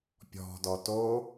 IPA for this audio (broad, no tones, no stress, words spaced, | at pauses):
pʲɔ̤dɔ to